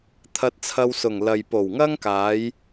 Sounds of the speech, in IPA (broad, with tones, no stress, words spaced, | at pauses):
t̪ʰɐ˧t̚t͡sʰɐ˧wsʊ˨˩ŋ lɐ˨jpo˨˩wŋɐ˥ŋkaː˨˧j